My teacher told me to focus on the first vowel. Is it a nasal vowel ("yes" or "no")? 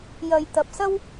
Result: no